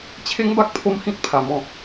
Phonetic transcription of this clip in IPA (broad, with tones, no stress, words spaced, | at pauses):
t͡ɕʰe˦ŋba˦k̚ pʰo˦mhĩ˦t̚ pʰa˧mɔ̃˦